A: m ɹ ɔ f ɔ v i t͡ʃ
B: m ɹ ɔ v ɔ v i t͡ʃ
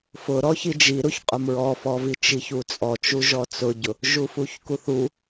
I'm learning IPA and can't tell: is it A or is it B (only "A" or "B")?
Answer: A